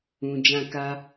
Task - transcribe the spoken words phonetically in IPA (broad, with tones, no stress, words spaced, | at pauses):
ũ˨ d͡ʒã˧ka˦